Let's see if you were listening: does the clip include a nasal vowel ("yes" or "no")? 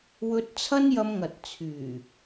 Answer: no